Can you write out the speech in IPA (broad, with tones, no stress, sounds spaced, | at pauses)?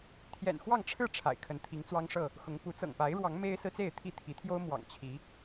t̪ʰ j ɛ̰˨˩ n x w ɑ˥˨ ŋ ʈ͡ʂʰ ɻ̩˥˨ ʈ͡ʂʰ a̰˨˩ ɪ̯ kʰ ə˨˦ n t̪ʰ i˨˦ ŋ t͡s w ɑ˦ ŋ ʂ ɤ˥˨ | x ʊ˨˦ ŋ p u˨˦ t͡s ɤ̰˨˩ ŋ p a˨˦ ɪ̯ ɻ w ɑ˨˦ ŋ m e˦ ɪ̯ s ɹ̩˦ t͡s e˥˨ ɪ̯ t̪ʰ i˥˨ t̪ʰ i˨˦ t̪ʰ j o˦ ʊ̯ m w ɑ̰˨˩ ŋ t͡ɕʰ i˨˦